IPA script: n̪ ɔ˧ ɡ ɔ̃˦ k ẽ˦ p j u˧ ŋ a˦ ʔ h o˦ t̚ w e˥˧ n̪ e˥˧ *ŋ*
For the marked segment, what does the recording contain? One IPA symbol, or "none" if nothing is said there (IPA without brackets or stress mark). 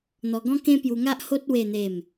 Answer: m